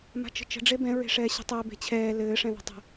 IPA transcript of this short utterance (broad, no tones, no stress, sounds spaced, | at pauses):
m a̤ t͡ʃ ə̤ t͡ʃ ə̤ ɖ͡ʐ e b ɛ̃ ɹ e̤ ʂ ɛː ɕ ə̤ tˤ ɛ b e̤ t͡ɕʰ ɛː l ɘː ʂ ɛ̃ ð a̤ tˤ ə̤